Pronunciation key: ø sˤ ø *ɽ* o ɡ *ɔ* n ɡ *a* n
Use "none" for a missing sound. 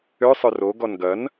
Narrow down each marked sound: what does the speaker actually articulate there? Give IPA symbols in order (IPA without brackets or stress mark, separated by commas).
r, ɔ, ɐ